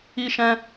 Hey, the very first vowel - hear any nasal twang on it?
no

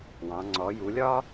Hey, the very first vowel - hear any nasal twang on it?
yes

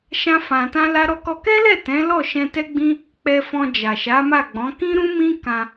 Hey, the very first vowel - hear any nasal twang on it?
yes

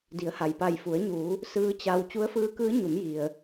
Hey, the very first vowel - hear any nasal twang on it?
no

